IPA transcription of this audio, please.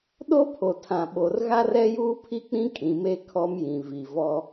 ɗo˦pʰo˨ tʰã˨ ɓo˨r ɣa˦rɛ˦juː˦ pʰi˦k͡pĩ˦ kʼĩ˨me˦ kʰɔ˦mjĩ˨ vi˨ vɔ˦

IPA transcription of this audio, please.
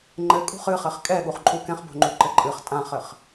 ŋ͡ǃɘ kʼṳχɨ χɘχkʼɛɠuχ ǃʼukɛ̃χbo̤ŋ͡ǃu ǃɘǃʼɨχ tʼãχɘχ

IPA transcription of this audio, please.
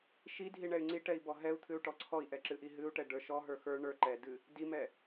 ʃi dʱiɳɛy̯ŋ͡ǀiʈɛi̯ bɔɦɛu̯t̪ʰɨu̯ ʈɔǀʰɔi̯ʔɛ ǁɨʔiɦɨu̯ʈɛ ɖə˞ʃɔɦə˞ xə˞ ɳə˞ ǃɛdɨ | dimɛ

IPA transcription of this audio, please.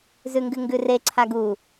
zʉŋɡɨŋɡʉre ǀʰaɡu

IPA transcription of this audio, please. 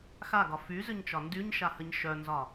xaɡɒ fyzʏɲt͡ʃɒ ndyɲʃahəɲ ʃœnzɒ

